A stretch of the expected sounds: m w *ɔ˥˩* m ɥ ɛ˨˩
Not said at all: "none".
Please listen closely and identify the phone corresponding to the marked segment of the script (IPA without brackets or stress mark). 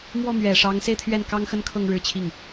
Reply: ɔ˥˩